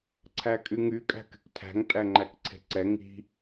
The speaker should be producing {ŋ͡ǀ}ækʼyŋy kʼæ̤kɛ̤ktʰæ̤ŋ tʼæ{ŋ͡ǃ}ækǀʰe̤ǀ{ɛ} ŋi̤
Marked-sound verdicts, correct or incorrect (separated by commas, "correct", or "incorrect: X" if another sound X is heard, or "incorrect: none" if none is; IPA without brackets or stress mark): incorrect: ǀʰ, correct, correct